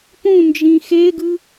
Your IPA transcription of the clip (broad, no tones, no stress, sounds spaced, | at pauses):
p ũ n d͡ʒ ĩ x e ɡ ɯ